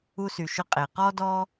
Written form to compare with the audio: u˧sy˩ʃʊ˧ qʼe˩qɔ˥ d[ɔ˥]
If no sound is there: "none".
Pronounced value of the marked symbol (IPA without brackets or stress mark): ɔ˥